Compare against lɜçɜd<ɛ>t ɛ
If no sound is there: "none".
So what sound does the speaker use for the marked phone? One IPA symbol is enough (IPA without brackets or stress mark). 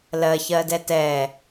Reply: ɛ